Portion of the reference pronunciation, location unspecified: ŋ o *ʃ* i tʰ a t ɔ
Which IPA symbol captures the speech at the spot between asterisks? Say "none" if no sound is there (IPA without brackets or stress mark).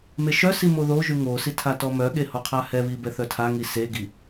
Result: s